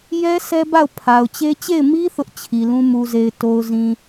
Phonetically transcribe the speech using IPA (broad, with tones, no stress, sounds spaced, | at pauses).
j ɛ˦ sʰ ɛ˦ b a˦˨ ʊ̯ pʰ a˨ ʊ̯ t͡ɕ e˦ t͡ɕ e˦˨ ɪ̯ m i˦ θ ʊ˦ ʔ t͡ɕʰ i˨ l ũ˦ m u˨ z e˨ ɪ̯ t o˨ ʊ̯ z ĩ˨